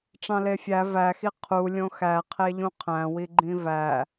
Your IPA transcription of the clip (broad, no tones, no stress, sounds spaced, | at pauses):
ʈ͡ʂ ɑ̃ l e fʲ æ v æ x i qʰ u lʲ õ x æ qʰ e ʎ ũ qʰ æ̃ w i ɡ͡ǃ ĩ v æ